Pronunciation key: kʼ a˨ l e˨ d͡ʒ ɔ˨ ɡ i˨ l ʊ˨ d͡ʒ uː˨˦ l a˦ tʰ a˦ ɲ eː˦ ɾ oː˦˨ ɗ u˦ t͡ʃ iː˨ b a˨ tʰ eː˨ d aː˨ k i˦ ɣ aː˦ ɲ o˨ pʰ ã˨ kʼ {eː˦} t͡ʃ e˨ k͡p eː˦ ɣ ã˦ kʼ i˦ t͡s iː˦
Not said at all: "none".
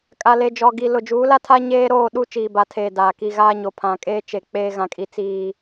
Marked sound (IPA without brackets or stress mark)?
eː˦